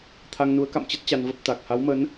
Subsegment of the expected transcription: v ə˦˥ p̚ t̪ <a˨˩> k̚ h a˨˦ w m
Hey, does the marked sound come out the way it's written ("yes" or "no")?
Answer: yes